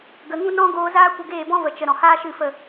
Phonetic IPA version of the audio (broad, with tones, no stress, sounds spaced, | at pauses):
ɡ ə˨ ŋ ũ˦ n ɔ̃˦ ɡ oː˧ z aː˦ kʷ ə˧ ɡ eː˦˨ b ɔ̃˦ v ə˨ t͡ʃ ə˨ ɾ ɔ̃˨ h aː˦ ʃ ɨ˦˨ f ə˦˨